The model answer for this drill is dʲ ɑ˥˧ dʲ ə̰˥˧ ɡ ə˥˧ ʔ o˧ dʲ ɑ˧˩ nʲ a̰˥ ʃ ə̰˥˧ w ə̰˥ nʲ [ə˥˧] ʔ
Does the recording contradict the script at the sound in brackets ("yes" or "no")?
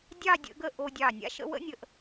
yes